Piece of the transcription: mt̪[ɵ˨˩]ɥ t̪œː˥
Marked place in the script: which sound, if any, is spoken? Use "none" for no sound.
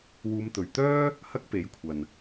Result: ɵ˨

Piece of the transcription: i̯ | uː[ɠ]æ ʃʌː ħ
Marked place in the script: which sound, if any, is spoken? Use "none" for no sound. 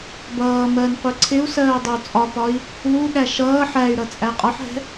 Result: ɠ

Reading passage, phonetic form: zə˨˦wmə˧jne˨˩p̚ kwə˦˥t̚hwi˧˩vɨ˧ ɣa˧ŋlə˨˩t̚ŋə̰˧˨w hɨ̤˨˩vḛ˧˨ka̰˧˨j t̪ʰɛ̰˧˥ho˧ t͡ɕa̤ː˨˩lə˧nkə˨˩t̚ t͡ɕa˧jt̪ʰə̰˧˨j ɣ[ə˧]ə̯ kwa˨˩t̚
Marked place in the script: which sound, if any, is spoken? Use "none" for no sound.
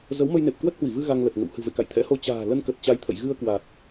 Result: ɨ˧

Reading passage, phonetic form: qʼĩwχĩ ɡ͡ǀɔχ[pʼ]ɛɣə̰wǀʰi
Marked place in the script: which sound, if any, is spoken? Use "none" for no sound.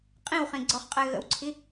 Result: qʼ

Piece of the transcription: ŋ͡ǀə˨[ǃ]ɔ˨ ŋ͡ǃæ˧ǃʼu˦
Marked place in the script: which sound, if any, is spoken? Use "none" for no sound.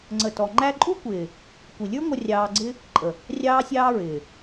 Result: t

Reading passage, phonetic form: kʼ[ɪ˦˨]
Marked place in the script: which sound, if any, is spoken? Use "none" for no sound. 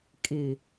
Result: ɪ˨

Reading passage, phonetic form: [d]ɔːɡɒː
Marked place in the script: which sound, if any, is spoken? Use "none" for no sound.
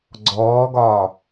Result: ɡ͡ǀ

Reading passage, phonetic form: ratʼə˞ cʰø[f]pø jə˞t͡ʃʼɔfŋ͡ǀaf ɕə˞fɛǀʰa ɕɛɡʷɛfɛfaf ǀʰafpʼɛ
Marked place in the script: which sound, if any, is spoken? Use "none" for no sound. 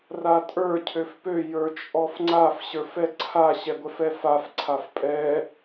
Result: f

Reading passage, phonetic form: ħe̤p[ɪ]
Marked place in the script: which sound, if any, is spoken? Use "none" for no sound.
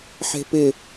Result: ɪ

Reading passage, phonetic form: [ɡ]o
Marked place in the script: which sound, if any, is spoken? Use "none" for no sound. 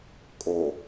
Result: kʼ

